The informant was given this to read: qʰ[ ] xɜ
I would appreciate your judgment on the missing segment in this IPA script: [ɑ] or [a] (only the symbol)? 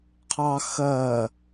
ɑ